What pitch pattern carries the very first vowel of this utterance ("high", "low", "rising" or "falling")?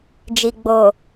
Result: low